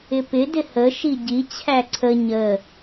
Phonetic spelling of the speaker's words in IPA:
ɪpɪ dɪhə ʃiɟi t͡ɕʰæǀʰə ɲə

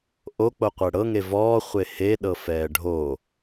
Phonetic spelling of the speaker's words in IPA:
ʔok͡po qʷɛɽɤŋe vɔː χʷehe ɗɤfɛːɖʱo

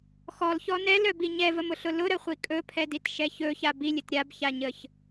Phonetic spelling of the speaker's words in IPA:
xɔlçɔ nɛlœbi ɲɛvəmʊɬʊ lʊɾəχʷi kʼɵpʰɛditʃɛ çɵça bilʲət ɾʲabçaɲəç

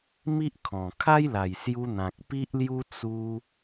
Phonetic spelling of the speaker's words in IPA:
mi˦ʔkʰɔ̃˨˩ kʰa˦jla˨˩jsju˧ n̪ã˨k̚pi˦ʔlju˦ t͡su˧

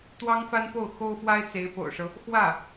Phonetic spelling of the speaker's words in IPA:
t̪wɑ˥ŋfa˥npo˥˩ʊ̯ xo˥ʊ̯fwa˥ɪ̯t͡se˧˥ɪ̯ po̰˨˩ʊ̯ʂɤ˦ | xwä˥˩

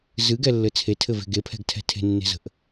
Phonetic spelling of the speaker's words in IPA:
zɨɡɛlːɘ t͡sʰetʰɘve̤ ɡepʰɛ̤ɡtʰɛ̤ tʰe̤nːe̤zə̤ʔ

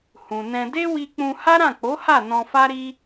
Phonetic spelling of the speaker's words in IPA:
hũ˨nɛ̃˧ de˦wi˧k͡pũ˧ ha˦ɾã˦˨k͡po˨˦ha˦˨ nɔ̃˧fa˦ɾi˦

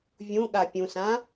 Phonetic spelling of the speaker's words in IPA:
vʲũɠa pʲũsã

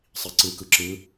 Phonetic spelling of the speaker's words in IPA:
sˤiǀɯ kɯǁɯ

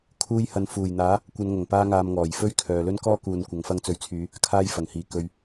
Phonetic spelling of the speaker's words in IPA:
kʰuː˧jhɐ˨nfuː˨˩jn̪aː˨˥ | kʷɐ˨˧nŋɐ˨˩ŋpaː˧ŋaː˨m ŋɔː˨˩jfɵ˥ɥkʰœː˨lɵ˥n kɔː˥kuː˨n kʷɐ˧ŋfɐ˥ŋ t͡sɵ˨˥ɥt͡sʰyː˨˧ | kʰaː˧jfɐ˨˩ŋhiː˨˩ kɵ˨ɥ

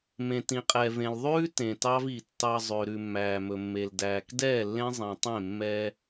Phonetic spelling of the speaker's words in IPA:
mẽ˨tĩ˨qʼɛ˨vẽ˨l ðˤʉː˦ tẽ˨tɑ˦vi˨ tːɑ˨ zˤø˨ ɾʉ˨mːæː˨mɵ˨mːe˨l dæː˨kdɛː˦˨lːẽ˦ zˤẽ˨tˤẽ˦˨ mːɛ˦

